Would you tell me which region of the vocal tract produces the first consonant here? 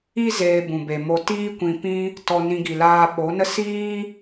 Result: tongue tip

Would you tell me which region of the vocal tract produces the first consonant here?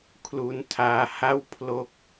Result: velum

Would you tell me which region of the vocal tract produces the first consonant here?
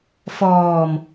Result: lips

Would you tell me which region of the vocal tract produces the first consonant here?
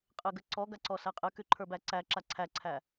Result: uvula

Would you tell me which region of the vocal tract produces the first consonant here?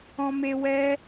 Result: lips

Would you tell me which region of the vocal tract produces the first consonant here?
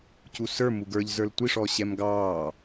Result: palate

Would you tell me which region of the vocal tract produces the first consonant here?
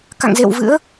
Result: velum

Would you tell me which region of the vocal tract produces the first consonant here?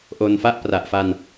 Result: throat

